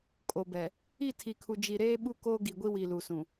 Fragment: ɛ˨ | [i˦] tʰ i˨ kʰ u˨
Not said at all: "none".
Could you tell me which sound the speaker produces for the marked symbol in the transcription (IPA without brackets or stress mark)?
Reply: i˦˨